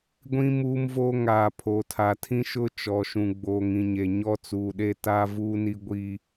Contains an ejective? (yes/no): no